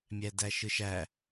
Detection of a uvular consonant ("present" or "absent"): absent